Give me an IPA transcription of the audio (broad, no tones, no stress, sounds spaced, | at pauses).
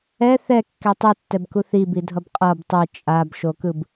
ɛ θ ɛ kː ɛ tˤ e tː ɛ b k u θ i b i dʱ ʌ b qʼ ʌ b tˤ e t͡ʃʼ a b ʃ o k ɯ b